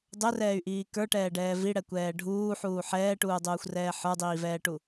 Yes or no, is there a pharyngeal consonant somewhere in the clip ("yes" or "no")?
yes